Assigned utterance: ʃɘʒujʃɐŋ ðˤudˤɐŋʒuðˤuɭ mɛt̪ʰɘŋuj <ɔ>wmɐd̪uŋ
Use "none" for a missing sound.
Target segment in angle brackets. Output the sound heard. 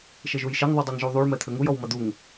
ɔ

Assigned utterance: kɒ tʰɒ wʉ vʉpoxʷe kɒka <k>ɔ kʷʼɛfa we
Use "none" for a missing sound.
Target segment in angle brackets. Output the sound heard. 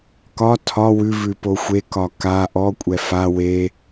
ʔ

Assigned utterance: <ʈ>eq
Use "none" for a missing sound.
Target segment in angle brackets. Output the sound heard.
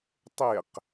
tˤ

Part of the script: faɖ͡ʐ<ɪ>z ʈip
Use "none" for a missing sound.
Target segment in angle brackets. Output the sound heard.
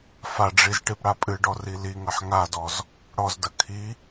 i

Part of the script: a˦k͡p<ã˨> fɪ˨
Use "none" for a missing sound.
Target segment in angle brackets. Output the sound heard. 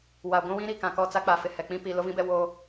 a˨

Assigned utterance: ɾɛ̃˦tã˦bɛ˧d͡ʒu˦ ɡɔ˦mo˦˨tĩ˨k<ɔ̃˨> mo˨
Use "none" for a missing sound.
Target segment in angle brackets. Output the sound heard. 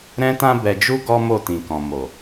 ɔ̃˨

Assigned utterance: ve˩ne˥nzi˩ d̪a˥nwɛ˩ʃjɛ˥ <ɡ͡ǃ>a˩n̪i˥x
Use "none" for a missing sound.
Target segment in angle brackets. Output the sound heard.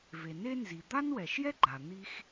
ɡ͡ǃ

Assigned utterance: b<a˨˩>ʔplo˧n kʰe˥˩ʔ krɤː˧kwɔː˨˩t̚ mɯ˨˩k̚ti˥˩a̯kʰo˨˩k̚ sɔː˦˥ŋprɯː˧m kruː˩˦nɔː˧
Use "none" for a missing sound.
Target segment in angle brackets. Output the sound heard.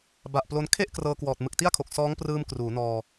a˨˩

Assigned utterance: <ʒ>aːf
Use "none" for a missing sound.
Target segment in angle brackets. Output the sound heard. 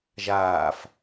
ʒ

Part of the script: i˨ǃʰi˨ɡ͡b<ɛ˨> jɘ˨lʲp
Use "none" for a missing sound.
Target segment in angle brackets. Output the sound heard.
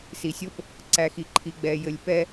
ɛ˨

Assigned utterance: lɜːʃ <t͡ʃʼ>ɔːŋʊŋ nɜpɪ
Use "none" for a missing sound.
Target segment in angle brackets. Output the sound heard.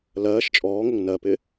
t͡ʃʼ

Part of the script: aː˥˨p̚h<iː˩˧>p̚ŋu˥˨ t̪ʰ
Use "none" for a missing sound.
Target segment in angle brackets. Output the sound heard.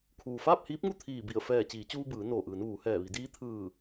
iː˧˥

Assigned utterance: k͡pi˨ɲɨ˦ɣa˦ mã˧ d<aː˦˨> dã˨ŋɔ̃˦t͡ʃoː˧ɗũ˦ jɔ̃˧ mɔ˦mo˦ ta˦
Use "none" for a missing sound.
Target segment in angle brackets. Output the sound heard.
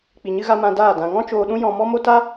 aː˦˨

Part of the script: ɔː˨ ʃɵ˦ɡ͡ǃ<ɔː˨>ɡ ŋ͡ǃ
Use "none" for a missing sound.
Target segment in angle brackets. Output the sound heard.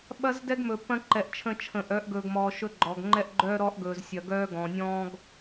ɔ˨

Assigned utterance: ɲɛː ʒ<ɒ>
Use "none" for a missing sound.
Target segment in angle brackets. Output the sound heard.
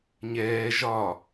ɒ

